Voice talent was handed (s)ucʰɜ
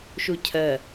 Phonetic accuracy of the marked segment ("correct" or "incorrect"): incorrect